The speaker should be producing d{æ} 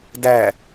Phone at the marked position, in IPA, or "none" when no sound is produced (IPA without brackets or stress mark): æ